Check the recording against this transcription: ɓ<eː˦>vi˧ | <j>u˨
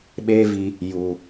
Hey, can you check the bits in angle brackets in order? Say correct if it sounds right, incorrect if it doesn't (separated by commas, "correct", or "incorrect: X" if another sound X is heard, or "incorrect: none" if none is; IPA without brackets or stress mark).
correct, correct